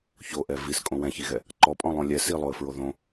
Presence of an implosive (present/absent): absent